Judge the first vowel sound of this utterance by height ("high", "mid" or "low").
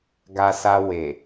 low